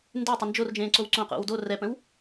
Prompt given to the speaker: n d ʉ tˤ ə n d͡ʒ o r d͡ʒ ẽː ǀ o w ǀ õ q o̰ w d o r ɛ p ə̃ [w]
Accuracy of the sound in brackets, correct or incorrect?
correct